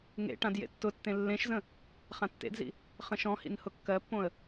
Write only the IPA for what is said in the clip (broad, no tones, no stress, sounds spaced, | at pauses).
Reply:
ŋ ḛ ʈ ã d j ḛ tː ʊ tː ẽ lː ẽ ʃ z ə̃ | χ ã tː ḛ d z ḭ | χ ə̃ ʃ ɔ̃ h ḭ n h ʊ kː ɜ pː õ ə̯